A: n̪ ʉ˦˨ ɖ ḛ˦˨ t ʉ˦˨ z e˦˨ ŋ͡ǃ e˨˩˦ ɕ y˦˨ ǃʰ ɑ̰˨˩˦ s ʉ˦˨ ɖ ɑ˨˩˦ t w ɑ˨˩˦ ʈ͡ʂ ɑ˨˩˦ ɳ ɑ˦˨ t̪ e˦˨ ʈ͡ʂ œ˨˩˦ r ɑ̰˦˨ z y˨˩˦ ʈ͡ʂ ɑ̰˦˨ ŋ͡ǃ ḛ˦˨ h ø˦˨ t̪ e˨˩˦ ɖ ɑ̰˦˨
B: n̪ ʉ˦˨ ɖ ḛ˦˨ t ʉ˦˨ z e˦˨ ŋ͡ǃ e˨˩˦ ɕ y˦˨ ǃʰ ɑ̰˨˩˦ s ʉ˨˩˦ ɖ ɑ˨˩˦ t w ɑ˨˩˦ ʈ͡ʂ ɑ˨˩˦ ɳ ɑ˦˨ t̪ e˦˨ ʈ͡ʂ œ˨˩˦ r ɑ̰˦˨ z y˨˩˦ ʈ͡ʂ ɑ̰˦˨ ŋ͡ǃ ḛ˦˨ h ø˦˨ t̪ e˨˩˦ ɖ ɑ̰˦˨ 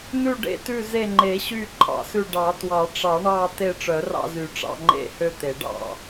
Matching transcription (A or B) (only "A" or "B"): A